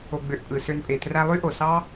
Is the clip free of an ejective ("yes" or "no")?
no